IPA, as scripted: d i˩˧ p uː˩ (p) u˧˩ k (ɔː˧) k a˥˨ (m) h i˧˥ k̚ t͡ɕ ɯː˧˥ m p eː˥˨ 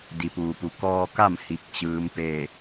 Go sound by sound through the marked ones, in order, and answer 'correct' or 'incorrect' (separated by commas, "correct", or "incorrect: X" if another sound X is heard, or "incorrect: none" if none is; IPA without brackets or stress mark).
correct, correct, correct